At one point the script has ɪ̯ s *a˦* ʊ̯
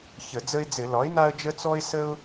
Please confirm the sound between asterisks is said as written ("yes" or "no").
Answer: no